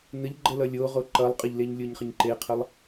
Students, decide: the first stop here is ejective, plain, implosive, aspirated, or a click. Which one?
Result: click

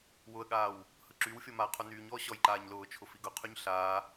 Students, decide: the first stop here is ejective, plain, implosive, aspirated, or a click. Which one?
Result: implosive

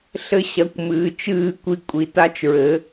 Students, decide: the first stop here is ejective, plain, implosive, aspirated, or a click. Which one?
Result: plain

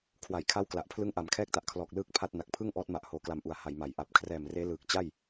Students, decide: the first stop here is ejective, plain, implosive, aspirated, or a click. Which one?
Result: aspirated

